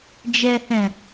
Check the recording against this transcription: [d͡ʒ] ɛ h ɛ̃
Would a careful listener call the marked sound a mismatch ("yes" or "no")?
no